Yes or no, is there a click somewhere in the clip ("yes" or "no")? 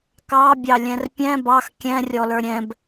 no